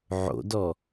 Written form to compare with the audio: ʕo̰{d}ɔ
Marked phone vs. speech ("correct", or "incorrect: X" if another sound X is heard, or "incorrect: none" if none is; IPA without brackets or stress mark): correct